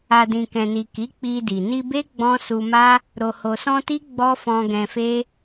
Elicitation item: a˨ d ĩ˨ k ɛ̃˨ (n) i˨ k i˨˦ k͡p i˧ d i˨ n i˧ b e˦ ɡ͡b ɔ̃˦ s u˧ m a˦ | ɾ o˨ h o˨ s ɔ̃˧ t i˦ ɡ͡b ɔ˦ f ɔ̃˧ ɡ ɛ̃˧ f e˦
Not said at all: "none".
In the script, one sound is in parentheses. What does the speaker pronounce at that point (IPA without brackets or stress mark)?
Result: n